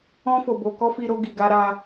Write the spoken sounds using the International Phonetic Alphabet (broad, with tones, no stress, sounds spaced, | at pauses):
ɔ̃˧ f o˨ b o˨ k ɔ˧ f i˧ ɾ o˧ ɡ i˨ ɡ a˧ ɾ a˧